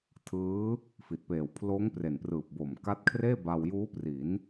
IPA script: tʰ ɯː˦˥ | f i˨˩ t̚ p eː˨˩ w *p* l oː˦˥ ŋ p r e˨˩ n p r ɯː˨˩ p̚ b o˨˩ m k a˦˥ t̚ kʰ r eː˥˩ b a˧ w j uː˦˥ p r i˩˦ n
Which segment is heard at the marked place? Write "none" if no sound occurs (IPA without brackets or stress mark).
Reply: pʰ